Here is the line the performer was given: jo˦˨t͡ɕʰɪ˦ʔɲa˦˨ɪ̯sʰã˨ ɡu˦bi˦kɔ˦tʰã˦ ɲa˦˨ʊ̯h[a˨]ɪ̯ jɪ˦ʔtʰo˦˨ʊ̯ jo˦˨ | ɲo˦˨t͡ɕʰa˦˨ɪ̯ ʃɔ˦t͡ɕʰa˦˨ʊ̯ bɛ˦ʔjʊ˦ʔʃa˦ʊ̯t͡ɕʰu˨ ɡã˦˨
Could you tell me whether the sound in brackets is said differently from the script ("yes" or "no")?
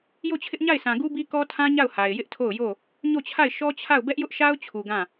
no